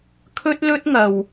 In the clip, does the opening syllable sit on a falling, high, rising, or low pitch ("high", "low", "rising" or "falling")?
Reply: high